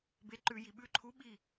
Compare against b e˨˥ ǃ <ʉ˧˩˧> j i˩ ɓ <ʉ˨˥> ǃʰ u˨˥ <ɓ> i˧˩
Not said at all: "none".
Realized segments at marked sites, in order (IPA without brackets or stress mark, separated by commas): ʉ˧˩˧, ʉ˨˥, ɓ